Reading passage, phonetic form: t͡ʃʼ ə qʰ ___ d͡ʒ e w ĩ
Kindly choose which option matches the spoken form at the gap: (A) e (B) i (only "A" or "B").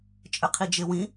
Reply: B